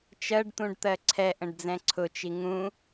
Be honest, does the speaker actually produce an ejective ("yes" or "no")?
no